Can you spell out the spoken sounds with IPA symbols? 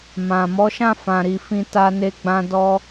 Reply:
mã˨mɔ˨˦ʃã˦˨ fã˨ɾi˨ fĩ˧ta˧ne˧ɡ͡bã˧ dɔ˧

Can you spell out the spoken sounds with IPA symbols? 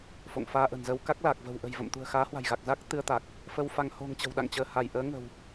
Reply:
fo̰˧˨ŋfaː˧ʔə̤˨˩nzə˧w ka˦˥k̚laː˨˩k̚və̤˨˩w ʔə̤˨˩jvə̰˧˨mt̪ṳ˨˩ə̯ xaː˨˦hwa̤˨˩jɣa˨˩k̚za˦˥k̚ t̪ɨ˧ə̯t̪a˨˩k̚ | fə˧wfa˧ŋ ho̤˨˩ŋ t͡ɕə̤˨˩wɗa̰˧˨ŋt͡ɕəː˧˩ha˧˩j ʔəː˨˦ŋə̤˨˩w

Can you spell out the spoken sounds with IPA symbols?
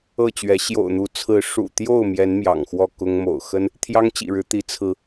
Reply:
ɤ˥˨t͡ɕɥɛ˨˦ ɕjo̰˨˩ʊ̯n̪u˨˦t͡sʰɹ̩˨˦ ʂṵ˨˩t̪jo˥˨ʊ̯ mjɛ˨˦n mjɑ̰˨˩ŋxwɔ˥˨ kʊ˦ŋ mo̰˨˩ʊ̯xə˦n | t̪ʰjɑ˦ŋt͡ɕḭ˨˩ɻɻ̩˨˦ t̪i˨˦t͡sʰɹ̩˨˦

